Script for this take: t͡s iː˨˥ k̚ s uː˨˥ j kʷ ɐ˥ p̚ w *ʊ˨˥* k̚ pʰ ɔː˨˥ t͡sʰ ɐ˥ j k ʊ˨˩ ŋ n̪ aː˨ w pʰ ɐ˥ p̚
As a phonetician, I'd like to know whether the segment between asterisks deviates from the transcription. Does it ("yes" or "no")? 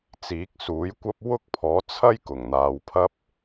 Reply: yes